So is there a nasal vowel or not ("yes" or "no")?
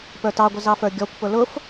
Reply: no